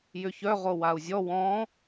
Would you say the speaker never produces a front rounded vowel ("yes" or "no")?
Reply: no